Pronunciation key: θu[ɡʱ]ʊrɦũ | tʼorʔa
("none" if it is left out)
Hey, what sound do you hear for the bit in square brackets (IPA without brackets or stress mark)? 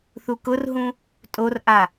k